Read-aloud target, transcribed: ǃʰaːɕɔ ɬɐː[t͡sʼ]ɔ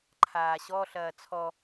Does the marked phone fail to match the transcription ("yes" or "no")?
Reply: yes